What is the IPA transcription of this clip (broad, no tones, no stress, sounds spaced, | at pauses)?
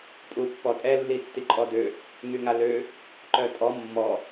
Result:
pʼ u pː ɔ tʼ ɛ lː i tː i ǃʼ ɔ d ø | ŋ y ŋ a l ø | ǃ œ tʼ ɔ mː ɔ